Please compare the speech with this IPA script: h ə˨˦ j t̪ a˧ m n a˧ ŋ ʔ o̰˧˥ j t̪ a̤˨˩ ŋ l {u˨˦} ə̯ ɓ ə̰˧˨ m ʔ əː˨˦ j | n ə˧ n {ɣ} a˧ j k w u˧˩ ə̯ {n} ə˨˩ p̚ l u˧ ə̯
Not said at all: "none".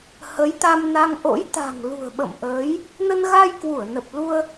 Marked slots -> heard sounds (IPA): ṳ˨˩, ɣ, n

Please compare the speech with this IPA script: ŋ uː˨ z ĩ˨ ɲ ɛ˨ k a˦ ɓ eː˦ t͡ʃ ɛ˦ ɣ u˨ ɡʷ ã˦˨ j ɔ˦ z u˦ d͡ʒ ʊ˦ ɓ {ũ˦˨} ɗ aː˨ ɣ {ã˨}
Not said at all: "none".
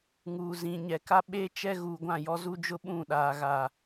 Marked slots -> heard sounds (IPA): ũ˦˨, a˨

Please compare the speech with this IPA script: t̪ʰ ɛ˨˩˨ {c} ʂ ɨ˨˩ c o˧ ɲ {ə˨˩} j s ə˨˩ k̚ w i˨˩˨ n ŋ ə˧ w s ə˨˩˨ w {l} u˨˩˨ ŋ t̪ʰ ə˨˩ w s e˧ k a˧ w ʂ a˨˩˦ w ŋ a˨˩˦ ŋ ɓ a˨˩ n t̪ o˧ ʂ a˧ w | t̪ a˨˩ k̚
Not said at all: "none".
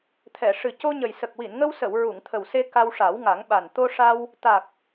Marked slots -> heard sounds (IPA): none, ə˨˩, ɹ

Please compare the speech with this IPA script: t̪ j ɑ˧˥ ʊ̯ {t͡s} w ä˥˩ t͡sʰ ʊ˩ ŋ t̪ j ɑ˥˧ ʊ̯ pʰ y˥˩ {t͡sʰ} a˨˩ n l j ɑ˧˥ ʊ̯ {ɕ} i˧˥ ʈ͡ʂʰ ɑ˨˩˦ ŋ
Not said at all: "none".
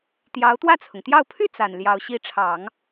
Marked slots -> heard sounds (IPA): t̪, t͡s, ɕ

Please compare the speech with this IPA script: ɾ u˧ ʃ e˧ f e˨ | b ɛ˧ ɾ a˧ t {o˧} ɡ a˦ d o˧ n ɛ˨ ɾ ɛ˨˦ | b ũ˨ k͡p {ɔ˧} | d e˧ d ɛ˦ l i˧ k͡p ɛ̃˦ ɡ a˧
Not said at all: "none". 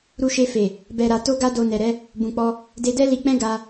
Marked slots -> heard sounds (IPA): o˦, ɔ˧

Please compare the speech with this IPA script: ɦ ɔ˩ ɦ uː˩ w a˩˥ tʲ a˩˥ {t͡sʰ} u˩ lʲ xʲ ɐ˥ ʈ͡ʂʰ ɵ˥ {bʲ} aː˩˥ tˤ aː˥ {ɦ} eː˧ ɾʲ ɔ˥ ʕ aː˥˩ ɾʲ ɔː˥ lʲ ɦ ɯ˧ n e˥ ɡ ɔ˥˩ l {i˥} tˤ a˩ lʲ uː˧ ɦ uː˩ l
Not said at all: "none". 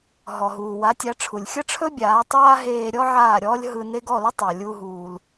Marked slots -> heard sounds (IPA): ʈ͡ʂʰ, bʲ, ɦ, ɪ˥

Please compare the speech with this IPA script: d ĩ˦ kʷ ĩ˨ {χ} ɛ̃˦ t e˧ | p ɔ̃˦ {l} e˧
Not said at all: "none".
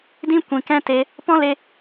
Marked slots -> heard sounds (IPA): k, l

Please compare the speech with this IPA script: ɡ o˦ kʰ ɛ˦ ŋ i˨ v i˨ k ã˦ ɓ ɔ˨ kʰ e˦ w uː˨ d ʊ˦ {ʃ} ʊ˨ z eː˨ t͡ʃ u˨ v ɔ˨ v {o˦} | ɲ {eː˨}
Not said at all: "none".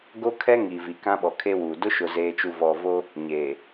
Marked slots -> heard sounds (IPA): ʃ, o˦, eː˨

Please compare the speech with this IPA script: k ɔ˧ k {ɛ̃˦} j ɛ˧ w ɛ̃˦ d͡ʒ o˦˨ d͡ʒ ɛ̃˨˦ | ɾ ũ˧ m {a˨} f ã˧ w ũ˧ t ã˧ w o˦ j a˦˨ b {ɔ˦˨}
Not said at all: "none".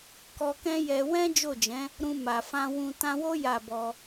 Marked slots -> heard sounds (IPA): ɛ̃˦, a˨, ɔ˧

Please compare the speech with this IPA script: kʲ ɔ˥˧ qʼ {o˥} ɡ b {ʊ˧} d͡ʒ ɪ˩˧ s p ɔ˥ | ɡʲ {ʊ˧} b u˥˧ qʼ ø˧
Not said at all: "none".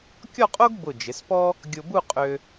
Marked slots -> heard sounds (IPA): o˥, ʊ˧˩, ʊ˧

